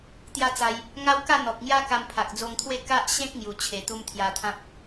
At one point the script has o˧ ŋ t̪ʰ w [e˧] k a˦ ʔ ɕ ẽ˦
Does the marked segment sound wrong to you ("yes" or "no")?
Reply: yes